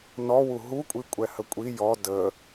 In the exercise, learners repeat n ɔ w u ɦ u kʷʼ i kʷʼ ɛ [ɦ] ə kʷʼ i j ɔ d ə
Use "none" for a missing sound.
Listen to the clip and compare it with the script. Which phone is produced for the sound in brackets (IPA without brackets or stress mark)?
h